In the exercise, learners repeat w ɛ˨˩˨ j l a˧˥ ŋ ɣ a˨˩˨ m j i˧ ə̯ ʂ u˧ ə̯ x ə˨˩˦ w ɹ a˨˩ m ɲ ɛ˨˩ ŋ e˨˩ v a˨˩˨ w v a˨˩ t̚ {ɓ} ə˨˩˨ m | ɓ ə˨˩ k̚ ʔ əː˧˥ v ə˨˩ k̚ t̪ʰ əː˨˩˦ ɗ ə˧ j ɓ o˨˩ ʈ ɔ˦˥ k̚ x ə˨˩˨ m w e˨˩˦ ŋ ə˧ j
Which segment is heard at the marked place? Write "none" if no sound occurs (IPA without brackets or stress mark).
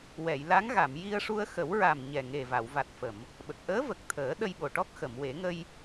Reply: f